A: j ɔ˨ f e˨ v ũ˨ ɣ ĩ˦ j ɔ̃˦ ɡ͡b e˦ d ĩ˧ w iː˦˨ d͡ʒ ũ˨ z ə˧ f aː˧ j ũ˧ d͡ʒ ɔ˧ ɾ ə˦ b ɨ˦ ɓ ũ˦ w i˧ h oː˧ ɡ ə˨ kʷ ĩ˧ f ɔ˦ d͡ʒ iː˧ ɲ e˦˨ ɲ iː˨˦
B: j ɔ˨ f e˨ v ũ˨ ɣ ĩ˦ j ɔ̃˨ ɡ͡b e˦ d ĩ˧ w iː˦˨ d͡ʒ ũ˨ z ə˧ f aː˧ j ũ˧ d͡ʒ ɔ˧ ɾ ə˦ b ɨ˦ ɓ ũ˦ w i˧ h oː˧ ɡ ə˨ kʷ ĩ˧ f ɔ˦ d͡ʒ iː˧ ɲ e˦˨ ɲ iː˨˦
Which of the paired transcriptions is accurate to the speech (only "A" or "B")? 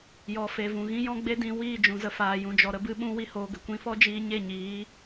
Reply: A